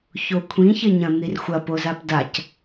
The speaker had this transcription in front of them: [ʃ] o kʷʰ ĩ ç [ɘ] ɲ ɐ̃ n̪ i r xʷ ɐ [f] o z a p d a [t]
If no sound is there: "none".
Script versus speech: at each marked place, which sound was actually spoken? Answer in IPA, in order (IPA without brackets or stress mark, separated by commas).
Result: ç, ɘ, p, c